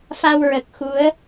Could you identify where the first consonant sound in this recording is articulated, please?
labial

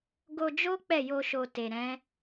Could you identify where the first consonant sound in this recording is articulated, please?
velar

